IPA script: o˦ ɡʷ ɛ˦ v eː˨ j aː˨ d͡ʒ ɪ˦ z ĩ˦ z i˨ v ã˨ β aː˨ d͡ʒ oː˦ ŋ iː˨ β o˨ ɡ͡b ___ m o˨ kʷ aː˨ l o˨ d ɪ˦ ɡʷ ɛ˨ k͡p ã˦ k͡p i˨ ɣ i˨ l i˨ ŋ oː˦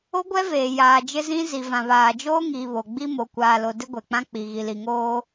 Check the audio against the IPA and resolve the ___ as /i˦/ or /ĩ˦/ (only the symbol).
i˦